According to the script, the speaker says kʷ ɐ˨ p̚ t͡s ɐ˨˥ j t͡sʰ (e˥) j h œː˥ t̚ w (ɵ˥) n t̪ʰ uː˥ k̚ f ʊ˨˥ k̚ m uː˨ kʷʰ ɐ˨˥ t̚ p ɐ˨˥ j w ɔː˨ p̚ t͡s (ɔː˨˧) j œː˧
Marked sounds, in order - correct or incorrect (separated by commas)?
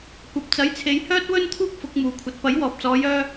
incorrect, correct, correct